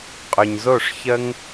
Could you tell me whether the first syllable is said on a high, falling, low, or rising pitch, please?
low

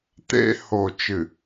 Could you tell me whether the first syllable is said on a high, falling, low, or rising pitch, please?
high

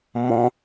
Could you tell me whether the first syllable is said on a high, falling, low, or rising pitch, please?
high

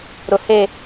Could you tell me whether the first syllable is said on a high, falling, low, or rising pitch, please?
low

